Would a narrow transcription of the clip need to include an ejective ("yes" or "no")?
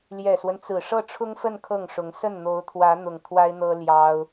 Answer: no